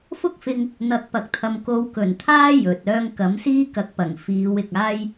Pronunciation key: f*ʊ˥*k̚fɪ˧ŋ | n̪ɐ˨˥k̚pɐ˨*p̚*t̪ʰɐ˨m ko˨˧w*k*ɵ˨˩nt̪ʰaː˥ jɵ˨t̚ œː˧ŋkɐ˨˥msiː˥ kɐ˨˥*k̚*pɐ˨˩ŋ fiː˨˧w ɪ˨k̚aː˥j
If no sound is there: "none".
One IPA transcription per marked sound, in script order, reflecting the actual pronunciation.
ʊ˥, k̚, k, k̚

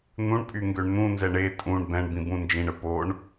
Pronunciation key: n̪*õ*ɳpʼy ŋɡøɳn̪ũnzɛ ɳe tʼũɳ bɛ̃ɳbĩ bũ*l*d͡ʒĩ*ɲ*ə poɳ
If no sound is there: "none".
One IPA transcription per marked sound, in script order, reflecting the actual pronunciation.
ũ, n, ɳ

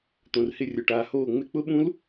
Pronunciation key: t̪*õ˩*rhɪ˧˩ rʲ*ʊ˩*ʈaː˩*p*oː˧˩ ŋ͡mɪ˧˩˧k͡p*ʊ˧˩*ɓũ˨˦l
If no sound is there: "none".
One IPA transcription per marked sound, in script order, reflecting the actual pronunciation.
õ˩, ʊ˩, h, ʊ˨˦

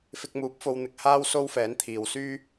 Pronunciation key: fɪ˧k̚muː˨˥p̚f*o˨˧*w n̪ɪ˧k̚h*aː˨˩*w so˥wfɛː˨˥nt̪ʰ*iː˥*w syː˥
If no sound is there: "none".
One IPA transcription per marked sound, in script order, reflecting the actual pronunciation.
o˧, aː˥, iː˨

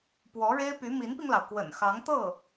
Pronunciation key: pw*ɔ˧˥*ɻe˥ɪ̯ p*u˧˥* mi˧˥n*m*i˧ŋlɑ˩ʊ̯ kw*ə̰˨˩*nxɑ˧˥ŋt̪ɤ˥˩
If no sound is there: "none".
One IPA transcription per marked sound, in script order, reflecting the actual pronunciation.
ɔ˧˥, y˧˥, p, ə̰˨˩

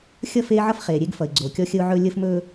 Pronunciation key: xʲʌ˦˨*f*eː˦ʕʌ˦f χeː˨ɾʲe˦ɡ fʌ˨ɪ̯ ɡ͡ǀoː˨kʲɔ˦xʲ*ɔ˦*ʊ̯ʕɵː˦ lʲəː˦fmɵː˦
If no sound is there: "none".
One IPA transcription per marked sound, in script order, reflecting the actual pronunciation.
f, ə˦

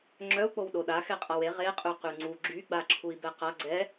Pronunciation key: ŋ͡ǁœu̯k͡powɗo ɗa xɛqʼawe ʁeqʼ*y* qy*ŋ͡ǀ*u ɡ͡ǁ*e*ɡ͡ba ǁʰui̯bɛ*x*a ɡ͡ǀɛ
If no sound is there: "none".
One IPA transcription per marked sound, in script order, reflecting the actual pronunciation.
y, ŋ͡ǀ, y, q

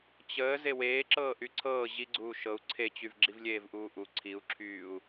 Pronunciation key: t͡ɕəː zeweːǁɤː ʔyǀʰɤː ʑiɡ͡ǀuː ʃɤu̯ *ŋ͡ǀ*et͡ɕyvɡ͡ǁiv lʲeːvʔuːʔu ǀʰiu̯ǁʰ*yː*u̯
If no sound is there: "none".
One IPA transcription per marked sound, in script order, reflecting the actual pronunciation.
ǀʰ, yː

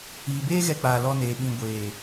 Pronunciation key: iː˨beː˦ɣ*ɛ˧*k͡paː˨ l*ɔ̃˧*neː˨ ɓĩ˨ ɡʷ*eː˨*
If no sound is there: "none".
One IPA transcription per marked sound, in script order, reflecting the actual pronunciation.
ɛ˧, ɔ˧, eː˨

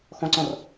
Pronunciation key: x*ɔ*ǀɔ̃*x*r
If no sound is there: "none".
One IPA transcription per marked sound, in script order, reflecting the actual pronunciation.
ɔ̃, none

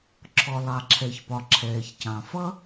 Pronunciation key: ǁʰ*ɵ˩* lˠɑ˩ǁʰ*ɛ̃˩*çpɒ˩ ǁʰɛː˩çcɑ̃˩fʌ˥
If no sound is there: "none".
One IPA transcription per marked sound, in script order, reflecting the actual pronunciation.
ɔ˩, ɛ˩

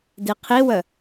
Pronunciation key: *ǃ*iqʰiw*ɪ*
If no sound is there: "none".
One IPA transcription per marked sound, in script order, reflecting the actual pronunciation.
d, ə

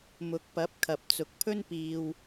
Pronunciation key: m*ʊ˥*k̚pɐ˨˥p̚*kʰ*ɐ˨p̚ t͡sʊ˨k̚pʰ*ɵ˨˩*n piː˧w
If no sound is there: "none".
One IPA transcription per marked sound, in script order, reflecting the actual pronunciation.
ʊ˨˥, kʰ, ɵ˥

